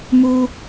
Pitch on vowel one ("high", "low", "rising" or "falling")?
high